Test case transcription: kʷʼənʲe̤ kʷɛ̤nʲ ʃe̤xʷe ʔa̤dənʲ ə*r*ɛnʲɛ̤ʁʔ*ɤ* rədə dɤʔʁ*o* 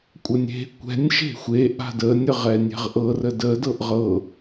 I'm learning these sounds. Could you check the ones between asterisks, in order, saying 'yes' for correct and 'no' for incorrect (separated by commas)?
no, yes, no